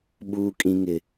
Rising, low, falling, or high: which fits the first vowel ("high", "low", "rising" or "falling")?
high